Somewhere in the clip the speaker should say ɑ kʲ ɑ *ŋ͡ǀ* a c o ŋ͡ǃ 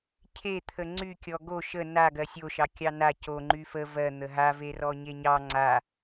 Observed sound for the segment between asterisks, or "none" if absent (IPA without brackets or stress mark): n